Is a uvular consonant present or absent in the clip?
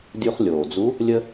present